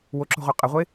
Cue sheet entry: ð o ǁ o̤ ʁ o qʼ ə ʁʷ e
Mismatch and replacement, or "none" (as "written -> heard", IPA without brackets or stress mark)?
ð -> w